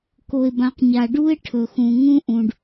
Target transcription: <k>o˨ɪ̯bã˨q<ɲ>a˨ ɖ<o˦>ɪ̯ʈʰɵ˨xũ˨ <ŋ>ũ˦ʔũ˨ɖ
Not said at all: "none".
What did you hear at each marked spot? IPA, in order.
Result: k, ɲ, u˦, ŋ

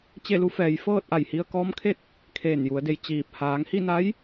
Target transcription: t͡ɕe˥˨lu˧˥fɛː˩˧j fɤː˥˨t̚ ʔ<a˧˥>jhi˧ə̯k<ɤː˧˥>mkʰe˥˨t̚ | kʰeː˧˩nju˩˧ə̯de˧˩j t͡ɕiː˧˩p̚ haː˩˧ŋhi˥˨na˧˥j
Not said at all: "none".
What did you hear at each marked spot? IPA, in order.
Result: a˧˩, ɔː˧˥

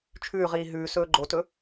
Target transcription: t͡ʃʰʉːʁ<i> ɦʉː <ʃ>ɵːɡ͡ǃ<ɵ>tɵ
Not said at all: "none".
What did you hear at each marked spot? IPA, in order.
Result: iː, s, o

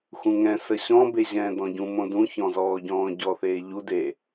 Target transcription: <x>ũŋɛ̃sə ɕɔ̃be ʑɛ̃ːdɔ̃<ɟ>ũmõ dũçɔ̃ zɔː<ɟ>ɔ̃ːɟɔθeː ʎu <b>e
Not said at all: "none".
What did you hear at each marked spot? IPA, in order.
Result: x, ɟ, ɟ, d

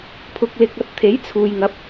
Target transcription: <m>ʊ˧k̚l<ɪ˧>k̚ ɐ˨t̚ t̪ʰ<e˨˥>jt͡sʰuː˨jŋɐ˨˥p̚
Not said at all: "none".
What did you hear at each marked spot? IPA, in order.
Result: pʰ, ɪ˧, e˨˥

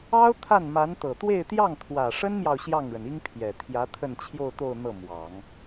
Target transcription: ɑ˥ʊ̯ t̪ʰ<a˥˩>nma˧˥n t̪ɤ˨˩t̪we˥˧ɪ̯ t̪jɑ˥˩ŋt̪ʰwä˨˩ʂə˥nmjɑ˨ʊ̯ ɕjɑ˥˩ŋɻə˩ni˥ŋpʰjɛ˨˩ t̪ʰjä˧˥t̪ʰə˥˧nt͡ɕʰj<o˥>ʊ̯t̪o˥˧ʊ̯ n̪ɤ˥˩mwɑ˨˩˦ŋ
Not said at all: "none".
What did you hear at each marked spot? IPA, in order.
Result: a˥˩, o˥˧

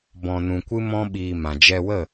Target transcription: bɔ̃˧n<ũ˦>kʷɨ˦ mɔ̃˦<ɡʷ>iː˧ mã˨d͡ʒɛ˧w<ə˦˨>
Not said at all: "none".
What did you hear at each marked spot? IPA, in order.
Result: ũ˧, ɓ, ə˦˨

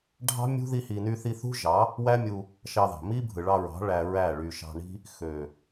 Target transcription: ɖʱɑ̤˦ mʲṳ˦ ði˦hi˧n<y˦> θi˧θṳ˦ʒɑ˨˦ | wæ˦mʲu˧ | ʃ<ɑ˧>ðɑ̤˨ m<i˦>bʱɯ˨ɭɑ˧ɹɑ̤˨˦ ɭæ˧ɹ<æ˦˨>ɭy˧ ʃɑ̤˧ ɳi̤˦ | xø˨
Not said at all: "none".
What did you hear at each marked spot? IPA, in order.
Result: y˦, ɑ˧, i˦, æ˦˨

